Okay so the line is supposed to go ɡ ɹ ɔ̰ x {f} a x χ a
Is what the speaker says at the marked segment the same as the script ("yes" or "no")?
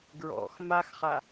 no